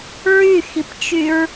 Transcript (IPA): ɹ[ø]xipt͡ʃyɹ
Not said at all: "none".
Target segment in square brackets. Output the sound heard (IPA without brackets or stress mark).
y